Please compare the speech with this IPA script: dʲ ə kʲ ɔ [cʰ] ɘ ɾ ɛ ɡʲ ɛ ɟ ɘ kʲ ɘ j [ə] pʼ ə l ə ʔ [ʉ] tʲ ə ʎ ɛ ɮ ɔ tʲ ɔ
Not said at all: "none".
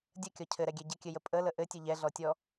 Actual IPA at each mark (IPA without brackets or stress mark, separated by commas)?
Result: cʰ, ə, ɘ